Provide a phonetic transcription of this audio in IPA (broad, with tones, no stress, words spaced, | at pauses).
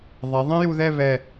ðˤɛ˩˧ ðˤɛ̃˥ju˧ðɛ˥˧βɛ˧˩